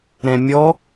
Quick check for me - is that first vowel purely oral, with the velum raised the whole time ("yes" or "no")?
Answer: no